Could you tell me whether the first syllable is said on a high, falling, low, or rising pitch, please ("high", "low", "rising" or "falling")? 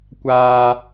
high